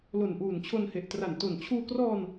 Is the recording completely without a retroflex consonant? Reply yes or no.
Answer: yes